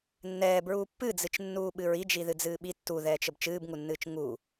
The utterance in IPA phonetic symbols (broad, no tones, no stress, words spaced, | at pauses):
nːɛːbɹuː pːɨd͡zɨt͡ʃnːuː ɓɨɹid͡ʒi ðɨd͡zɨːɓi tːuðɛːt͡ʃ əbt͡ʃɨːbŋunːɨːt͡ʃ ŋu